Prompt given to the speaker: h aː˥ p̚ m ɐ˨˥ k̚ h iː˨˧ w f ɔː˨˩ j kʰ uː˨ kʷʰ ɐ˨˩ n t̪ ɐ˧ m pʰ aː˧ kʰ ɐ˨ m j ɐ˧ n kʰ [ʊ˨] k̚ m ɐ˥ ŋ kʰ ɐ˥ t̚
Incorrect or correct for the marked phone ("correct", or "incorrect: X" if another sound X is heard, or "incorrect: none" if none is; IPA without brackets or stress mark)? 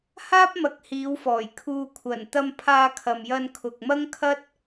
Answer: correct